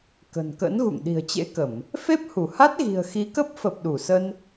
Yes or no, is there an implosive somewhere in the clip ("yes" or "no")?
yes